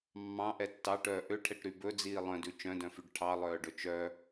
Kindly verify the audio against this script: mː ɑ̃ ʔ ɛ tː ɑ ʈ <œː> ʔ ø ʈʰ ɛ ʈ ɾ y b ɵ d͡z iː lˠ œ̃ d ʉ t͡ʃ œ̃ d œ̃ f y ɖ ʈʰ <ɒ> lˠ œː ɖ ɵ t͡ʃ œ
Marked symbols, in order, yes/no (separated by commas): yes, no